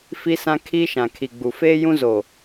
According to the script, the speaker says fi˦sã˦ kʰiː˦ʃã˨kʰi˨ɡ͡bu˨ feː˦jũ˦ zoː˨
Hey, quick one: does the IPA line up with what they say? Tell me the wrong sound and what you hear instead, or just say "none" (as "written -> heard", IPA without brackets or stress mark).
none